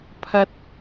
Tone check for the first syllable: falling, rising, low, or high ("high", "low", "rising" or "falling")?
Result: high